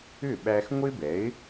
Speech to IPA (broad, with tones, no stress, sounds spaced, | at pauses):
ʏ˥˩ ɓ æ˧ x ŋʷ ɪ˥ b ɛ˩˥ ɪ̯